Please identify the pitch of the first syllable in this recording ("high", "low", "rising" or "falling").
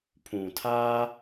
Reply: low